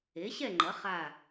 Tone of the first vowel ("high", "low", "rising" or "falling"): rising